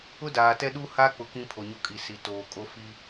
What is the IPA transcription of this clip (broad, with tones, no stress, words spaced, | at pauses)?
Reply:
ʊ˦daː˨tɛ˦ ɗu˦ha˦k͡pʊ˨ kĩ˦pʰo˨ɲo˦ kʼi˨si˨toː˨ kʼo˦fi˦